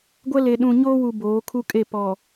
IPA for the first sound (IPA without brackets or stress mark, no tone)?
ɡʷ